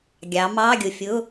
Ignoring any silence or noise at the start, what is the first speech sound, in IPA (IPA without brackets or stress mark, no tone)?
ɡʲ